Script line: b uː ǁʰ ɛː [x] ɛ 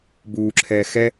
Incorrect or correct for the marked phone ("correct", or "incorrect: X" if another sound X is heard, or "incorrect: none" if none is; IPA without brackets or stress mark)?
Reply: correct